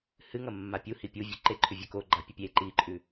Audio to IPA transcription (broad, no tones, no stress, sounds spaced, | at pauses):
h ɨ ŋ ɐ mː a pʲ u h i pʲ u vʲ ɵ ǃ e ǃʰ ʉ vʲ ɵ k o ɡ͡ǃ a pʲ ɐ pʲ e ǃ i ǃʼ ʉ